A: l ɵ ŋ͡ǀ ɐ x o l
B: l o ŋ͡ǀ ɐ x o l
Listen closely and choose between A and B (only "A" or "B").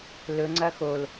A